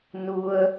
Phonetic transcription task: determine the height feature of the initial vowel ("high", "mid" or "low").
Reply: high